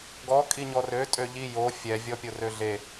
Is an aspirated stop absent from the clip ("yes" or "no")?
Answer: yes